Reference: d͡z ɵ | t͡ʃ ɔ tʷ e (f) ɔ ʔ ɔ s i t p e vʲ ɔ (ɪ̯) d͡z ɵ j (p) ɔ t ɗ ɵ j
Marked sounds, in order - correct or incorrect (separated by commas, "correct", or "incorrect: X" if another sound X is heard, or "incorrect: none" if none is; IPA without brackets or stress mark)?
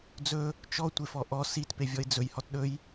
correct, correct, incorrect: h